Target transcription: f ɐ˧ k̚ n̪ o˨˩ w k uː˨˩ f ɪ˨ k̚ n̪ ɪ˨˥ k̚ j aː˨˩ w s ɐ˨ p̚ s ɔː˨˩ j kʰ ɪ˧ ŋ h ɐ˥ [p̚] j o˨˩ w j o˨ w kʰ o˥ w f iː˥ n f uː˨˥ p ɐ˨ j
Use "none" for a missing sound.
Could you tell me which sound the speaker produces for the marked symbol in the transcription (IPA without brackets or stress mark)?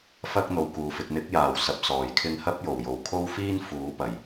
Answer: p̚